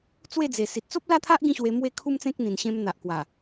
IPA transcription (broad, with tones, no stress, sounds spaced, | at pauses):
t͡s w e˥˧ d͡z e˨˩ s i˨ t̚ t͡s o˦ p̚ l a˥˧ t̪ʰ a˦ ʔ ɡ ĩ˥˧ ɕ w e˧ m w e˥˧ kʰ u˦ m t͡s ẽ˦ k̚ n̪ ĩ˨˩ n ɕ ẽ˧ m n̪ a˨ ʔ k w a˨˩